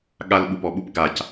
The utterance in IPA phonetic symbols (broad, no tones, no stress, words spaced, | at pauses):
ɠal ɓupɔɓup ɡac